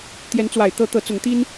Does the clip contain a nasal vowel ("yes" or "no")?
no